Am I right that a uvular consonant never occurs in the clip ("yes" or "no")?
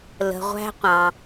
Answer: no